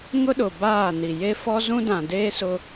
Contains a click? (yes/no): no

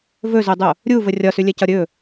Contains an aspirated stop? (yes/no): no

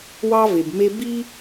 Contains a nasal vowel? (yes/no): no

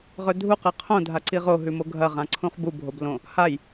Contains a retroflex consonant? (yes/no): no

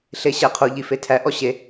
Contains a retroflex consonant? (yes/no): no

